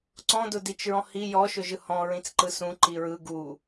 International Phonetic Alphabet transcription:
ǀ ɔ̃ d ʊ d i t͡ʃ ɹ ɔ̃ h i j ɔ ʃ ʊ ʒ ɯ h ɔ̃ ɹ ĩ t͡s ǃ ɯ s ũ ǃ i ɹ ɯ ɡ u

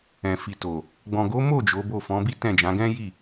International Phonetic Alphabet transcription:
ɛ̃˨ f i˨ t o˨ | ɡ͡b ɔ̃˨ ɡ o˨˦ m o˦˨ d͡ʒ o˨˦ b o˦˨ f ɔ̃˨˦ b i˦ t ɛ̃˦˨ d͡ʒ ã˨˦ ɡ ɛ̃˦ j i˦˨

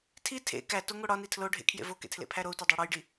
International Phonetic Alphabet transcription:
tʰ i tʰ ḛ k æ t o ŋ o ɽ ɒ n i tʰ l o ɖʱ ḛ kʰ j ḛ v o k ḛ tʰ l ḛ pʰ æ ɾ o u̯ t ɒ dˤ æ ɽ ɒ j ɖ i

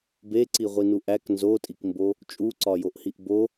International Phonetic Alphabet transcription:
b e ǀ i ʁʷ i n u ʔ æ k n z o tʼ i k m b o | t͡ʃʼ u ǀ ɒ j o ʔ h i ʔ b o

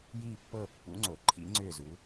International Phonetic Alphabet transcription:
j iː˦˨ pː ɤː˦˨ pː ṵ˨˦ ŋ͡ǀ o˨˩˦ ǃʰ ḭ˨˦ ŋ͡ǀ ʏː˦˨ z u˨˦

